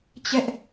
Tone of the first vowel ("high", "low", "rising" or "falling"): high